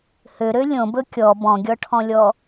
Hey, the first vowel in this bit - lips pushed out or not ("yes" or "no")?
yes